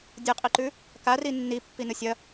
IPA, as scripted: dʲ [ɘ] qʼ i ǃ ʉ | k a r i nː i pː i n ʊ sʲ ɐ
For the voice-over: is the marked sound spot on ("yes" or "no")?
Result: yes